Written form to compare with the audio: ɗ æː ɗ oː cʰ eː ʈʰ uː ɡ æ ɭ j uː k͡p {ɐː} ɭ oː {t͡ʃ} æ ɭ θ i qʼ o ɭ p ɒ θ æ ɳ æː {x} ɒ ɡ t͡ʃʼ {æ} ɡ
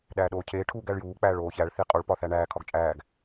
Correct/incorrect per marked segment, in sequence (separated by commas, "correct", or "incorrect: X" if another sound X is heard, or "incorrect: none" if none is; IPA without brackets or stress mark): incorrect: æː, incorrect: ç, incorrect: kʰ, incorrect: æː